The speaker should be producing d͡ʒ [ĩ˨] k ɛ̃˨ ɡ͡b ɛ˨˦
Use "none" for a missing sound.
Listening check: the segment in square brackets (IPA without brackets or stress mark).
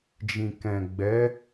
ĩ˨